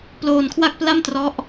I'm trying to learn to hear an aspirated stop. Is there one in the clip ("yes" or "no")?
yes